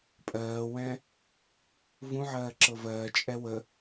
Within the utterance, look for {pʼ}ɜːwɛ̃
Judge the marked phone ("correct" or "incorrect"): correct